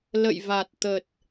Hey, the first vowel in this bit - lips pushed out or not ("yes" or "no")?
no